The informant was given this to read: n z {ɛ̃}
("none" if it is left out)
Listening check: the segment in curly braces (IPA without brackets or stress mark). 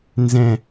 ɛ̃